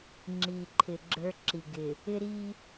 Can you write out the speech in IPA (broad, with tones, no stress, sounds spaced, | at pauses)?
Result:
ŋ͡ǁ i˨ ǃʰ ɪ˨ ɡ͡ǁ ə˞˦ ǁ i˨ ɡ ɪ˨ | ɪ˦ ɾ i˦